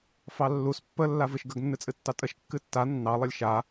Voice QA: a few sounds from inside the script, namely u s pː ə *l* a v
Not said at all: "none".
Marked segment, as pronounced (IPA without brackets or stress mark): lː